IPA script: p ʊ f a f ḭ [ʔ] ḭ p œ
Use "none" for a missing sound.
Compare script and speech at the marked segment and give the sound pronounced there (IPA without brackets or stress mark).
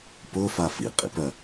qʼ